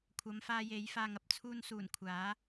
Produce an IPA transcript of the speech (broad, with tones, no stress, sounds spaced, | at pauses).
kʷʰ ɐ˨˧ m f aː˧ j e˨˥ j f aː˧ ŋ ɐ˧ p̚ t͡sʰ uː˧ n s uː˨˩ n kʷʰ aː˨˥